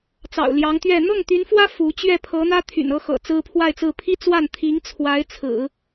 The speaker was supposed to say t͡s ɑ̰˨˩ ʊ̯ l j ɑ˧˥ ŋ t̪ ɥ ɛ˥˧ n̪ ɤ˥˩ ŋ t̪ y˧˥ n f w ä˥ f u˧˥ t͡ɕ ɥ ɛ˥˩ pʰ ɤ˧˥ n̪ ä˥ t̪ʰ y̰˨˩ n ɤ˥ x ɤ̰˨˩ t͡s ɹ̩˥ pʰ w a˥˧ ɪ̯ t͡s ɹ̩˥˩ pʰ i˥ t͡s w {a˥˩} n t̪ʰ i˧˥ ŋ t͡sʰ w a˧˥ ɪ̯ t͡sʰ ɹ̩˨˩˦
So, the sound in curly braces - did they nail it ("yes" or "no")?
yes